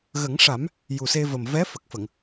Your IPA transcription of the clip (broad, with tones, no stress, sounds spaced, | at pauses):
ɣ ə˨˩˦ ŋ ʂ a˨˩˦ m | j u˨˩ s e˧ v ə˨˩ m v ɛ˧˥ f ə˨˩ k̚ f ə˨˩˨ ŋ